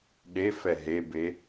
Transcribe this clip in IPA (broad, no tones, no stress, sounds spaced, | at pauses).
ɗ e f ɛ ɦ e b e